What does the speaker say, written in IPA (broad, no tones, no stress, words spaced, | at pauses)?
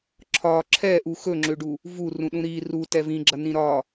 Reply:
ǁʰɒ ǁʰɛʔu xɵŋ͡ǁøɖu | vurũɗũ ɾi rutɛ vĩɡ͡ǁɐnĩ ɾɒ